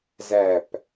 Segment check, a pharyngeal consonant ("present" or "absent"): absent